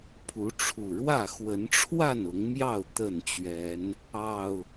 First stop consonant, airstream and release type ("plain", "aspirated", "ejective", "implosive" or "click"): aspirated